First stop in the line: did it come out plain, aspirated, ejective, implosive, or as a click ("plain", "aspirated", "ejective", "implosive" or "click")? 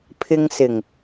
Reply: aspirated